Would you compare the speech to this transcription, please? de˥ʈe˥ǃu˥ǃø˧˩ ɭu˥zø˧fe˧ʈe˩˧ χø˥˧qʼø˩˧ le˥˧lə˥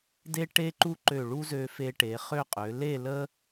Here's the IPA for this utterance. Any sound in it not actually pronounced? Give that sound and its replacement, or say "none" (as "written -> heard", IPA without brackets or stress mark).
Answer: none